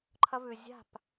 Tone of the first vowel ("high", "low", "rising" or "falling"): high